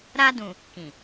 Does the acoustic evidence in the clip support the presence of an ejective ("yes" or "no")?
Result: no